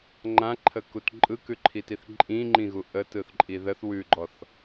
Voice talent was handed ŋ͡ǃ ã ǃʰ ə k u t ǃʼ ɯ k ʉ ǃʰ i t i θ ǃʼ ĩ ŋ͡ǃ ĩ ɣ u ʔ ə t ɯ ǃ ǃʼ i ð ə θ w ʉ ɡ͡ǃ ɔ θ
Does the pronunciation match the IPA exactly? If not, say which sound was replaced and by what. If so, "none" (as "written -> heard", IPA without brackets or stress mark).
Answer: ǃ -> θ